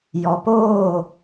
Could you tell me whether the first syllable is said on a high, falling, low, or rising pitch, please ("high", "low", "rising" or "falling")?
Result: low